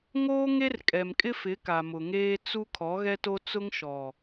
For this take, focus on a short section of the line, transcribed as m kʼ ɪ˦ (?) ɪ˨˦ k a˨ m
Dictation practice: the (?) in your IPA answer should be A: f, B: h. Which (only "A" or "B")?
A